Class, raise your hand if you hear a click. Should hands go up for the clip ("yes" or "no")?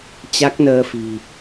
no